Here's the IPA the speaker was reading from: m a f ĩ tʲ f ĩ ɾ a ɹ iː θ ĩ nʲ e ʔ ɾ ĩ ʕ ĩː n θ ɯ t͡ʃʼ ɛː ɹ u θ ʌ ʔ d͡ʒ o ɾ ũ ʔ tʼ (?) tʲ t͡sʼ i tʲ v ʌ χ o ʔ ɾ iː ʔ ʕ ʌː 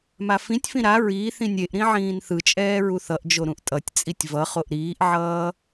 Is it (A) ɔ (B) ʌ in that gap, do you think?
B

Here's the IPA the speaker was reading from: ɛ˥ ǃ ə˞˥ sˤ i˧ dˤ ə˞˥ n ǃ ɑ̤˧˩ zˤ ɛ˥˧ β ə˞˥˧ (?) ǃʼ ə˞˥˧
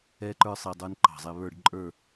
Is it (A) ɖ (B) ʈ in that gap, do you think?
A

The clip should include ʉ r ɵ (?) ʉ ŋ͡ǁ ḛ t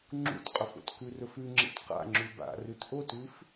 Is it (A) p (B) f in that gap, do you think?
B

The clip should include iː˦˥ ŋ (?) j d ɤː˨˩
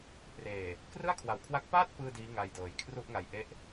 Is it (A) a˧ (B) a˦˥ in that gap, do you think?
A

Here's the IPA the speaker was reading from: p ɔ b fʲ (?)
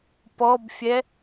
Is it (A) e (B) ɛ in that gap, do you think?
B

